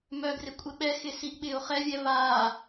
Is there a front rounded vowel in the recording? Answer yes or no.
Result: yes